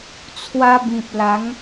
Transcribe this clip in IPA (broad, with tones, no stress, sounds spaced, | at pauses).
t͡sʰ w a˧ b ĩ˨ p̚ l a˨˦ ŋ